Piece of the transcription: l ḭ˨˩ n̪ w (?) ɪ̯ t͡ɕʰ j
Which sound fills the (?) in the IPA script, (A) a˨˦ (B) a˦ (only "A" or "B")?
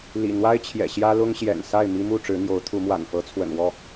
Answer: B